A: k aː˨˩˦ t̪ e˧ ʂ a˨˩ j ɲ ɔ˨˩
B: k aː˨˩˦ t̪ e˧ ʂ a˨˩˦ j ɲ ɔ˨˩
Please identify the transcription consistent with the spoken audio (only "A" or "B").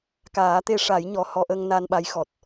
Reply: B